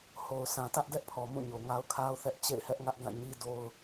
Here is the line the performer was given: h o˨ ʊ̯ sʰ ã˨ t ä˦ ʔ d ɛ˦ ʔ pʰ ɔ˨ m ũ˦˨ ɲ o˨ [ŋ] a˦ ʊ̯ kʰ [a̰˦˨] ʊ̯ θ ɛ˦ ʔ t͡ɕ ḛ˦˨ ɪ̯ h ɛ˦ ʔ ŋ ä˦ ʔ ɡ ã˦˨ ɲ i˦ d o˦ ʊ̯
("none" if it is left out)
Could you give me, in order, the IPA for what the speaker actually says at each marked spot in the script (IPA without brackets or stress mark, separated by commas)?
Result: ŋ, a˦